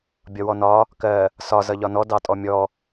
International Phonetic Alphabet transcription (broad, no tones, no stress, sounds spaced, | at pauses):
bʲ ɒ w ɔ n ɒ | k ɜ | s ɒ z ʌ ʎ ɒ n ɔ d ɑ tʼ ɔ mʲ ɔ